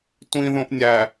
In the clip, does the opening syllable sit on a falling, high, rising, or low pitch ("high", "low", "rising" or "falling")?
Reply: high